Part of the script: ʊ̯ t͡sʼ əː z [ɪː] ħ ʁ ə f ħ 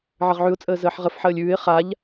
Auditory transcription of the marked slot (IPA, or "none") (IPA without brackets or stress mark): əː